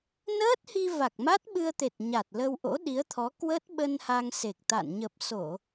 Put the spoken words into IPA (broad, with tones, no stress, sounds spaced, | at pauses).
n əː˦˥ t̚ h i˧ v a˨˩ k̚ m a˦˥ t̚ ɓ ɨ˧ ə̯ t̪ e˨˩ t̚ ɲ a˨˩ t̚ l ə˧ w ʔ o̰˧˥ ɗ i˨˦ ə̯ t̪ʰ ɔ˨˦ k w ə˦˥ t̚ ɓ ə˧ n h a˧ ŋ s e˨˩ k̚ t̪ a̰˧˨ n ɲ ə˨˩ p̚ s o˧˩˨